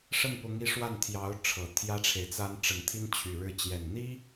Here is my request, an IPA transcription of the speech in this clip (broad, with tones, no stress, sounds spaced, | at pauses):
ʂ ə˥˩ n p ʊ˧˥ ŋ i˧˥ ʂ w a˥˩ n t̪ʰ j ɑ˧˥ ʊ̯ ʈ͡ʂʰ ɤ˨˩ t̪ʰ j ä˥ ʈ͡ʂʰ e˨ ɪ̯ t͡s a˥ n ʈ͡ʂ ə˨˩ n t̪ʰ i˥ n t͡ɕʰ y˨˩ ɻ ɻ̩˥˩ t͡ɕ j ɛ˨˩ n n̪ i˥